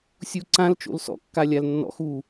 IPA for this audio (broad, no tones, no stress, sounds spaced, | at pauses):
sʲ u ǀ ã l t͡ʃ o̰ l s ɔ̰ kː a lʲ a l nː ɔ̰ x u